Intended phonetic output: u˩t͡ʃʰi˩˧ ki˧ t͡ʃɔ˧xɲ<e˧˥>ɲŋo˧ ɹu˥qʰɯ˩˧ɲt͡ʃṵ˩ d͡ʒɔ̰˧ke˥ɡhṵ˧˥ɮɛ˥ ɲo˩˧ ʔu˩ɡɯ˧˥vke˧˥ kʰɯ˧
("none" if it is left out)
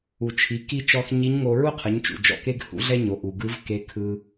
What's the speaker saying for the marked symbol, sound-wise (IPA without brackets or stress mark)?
i˧˥